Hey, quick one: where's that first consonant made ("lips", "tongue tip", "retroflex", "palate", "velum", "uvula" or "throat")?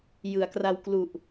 palate